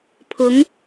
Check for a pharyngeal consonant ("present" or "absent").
absent